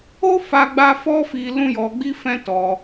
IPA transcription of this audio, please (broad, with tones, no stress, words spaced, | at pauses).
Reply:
o˦fa˧ɡ͡ba˧ fɔ˦ fi˦ lũ˦jɔ˧ɡ͡bi˦ fɛ̃˦tɔ˧